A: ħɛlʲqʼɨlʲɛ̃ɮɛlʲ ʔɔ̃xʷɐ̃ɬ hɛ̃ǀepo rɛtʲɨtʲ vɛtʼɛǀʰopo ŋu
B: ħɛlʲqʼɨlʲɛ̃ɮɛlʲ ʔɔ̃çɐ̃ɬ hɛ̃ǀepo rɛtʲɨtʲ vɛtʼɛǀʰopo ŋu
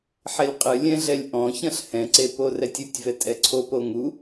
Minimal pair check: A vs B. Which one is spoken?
B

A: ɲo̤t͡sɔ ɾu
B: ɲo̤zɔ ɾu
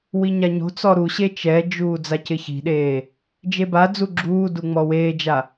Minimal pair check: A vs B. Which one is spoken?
A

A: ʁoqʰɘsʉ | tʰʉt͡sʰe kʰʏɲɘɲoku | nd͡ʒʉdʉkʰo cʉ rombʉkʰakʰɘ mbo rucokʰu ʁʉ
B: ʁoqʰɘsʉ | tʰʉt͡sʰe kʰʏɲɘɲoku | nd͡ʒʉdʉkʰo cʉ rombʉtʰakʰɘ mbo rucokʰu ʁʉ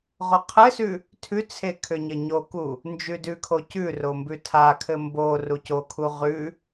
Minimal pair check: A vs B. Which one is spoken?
B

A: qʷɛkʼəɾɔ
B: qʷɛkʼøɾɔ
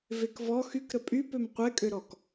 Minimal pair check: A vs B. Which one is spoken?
B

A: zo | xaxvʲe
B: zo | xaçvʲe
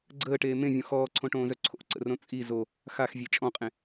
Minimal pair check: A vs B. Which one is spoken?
A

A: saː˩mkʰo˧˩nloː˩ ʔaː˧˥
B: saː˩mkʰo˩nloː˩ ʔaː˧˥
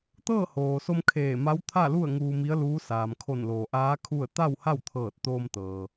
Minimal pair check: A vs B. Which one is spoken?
A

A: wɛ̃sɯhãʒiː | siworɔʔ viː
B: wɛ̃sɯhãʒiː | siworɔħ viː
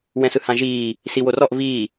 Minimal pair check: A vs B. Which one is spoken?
A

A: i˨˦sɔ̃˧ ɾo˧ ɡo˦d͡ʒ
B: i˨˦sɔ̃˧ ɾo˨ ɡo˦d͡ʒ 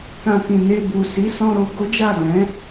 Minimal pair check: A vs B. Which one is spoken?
A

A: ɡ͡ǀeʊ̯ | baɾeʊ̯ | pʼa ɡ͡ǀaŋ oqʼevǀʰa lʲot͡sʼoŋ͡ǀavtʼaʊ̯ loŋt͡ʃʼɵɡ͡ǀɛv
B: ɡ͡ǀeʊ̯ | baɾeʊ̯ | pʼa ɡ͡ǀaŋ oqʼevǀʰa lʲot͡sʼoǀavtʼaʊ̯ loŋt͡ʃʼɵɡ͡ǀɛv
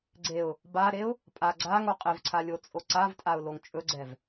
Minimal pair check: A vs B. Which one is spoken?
B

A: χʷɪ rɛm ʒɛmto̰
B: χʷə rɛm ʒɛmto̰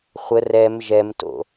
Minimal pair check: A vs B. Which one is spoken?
B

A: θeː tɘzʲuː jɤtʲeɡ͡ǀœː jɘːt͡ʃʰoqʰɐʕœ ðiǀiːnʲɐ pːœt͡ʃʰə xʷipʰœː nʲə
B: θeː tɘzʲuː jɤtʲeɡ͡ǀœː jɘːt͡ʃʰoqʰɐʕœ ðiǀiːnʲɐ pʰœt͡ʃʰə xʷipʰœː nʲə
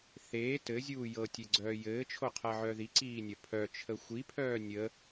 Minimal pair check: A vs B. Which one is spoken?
B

